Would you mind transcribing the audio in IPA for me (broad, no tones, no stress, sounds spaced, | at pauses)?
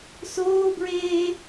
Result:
s oː b ɹ eː